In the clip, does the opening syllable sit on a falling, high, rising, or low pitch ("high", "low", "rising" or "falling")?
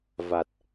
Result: low